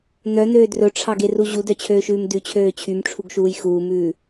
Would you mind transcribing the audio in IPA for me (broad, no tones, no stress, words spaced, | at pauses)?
n̪œn̪øː drɵʈ͡ʂʰɑɡeru ʑudœt͡ɕʰøːʃʉːm dʉt͡ɕʰøː t͡ɕʰymʈ͡ʂʰuɡʃuːj xuːmʉː